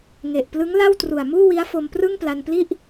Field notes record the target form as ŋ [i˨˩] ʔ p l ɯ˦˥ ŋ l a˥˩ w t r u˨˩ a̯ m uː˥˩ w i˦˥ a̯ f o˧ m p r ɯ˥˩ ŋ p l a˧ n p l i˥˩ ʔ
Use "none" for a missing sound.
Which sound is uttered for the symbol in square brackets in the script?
e˨˩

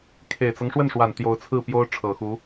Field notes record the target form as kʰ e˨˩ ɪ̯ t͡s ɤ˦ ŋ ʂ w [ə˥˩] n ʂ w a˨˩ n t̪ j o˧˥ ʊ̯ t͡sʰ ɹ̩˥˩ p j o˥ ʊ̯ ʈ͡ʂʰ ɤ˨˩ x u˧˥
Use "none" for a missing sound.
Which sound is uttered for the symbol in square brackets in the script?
ə˥˩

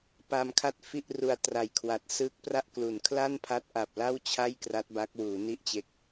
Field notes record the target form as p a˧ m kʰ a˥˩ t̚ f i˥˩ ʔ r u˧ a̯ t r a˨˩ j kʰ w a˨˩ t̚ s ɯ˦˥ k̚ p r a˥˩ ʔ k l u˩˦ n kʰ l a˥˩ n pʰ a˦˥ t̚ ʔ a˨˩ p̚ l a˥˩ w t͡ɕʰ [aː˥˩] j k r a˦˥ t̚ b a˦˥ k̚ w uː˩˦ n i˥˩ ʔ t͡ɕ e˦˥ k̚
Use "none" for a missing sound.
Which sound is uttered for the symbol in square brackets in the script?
a˥˩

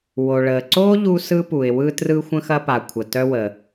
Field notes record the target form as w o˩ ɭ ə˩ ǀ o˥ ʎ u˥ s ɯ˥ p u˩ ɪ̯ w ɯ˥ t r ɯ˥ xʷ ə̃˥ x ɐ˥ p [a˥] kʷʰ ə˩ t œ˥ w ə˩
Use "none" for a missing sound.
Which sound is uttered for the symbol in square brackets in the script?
a˩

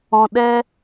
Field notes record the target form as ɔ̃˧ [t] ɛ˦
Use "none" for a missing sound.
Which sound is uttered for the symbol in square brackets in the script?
ɗ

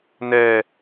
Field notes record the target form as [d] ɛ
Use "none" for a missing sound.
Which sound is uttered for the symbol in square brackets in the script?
n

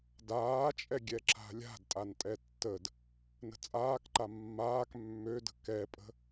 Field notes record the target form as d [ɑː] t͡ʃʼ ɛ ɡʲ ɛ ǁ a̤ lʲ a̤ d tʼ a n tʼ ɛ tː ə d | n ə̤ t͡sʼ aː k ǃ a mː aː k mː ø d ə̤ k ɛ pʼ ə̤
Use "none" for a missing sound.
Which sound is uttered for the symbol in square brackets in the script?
aː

